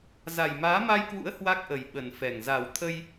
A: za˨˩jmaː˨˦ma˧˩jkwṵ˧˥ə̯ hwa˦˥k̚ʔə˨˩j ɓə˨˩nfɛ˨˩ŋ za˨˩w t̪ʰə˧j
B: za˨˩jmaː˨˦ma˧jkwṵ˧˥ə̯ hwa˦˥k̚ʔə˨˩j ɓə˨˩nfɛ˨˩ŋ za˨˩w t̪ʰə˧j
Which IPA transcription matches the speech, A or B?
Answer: B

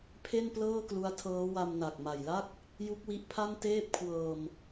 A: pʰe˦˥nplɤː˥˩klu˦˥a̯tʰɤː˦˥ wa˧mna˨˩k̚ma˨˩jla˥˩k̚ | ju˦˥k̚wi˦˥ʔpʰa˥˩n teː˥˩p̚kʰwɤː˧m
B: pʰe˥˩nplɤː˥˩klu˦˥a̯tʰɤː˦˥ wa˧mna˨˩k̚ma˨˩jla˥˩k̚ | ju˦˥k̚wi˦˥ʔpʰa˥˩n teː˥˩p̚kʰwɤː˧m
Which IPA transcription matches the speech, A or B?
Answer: B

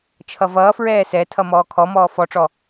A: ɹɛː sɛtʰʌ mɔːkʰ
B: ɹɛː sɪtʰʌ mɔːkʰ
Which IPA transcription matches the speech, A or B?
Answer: A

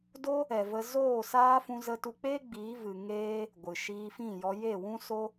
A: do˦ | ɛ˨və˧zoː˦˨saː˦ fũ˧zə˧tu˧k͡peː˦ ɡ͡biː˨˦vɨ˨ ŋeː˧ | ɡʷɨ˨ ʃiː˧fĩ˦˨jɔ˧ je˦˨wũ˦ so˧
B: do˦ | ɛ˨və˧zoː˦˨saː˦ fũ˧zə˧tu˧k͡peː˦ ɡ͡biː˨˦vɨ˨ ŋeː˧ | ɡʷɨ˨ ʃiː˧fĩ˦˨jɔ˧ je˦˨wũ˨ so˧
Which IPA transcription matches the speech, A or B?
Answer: A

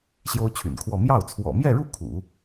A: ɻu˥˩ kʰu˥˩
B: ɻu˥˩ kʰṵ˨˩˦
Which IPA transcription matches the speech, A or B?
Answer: B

